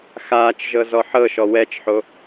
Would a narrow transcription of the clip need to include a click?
no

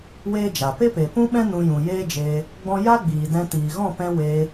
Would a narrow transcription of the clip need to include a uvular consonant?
no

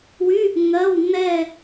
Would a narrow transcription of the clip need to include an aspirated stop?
no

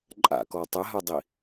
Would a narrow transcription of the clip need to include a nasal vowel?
no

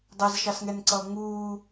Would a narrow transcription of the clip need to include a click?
yes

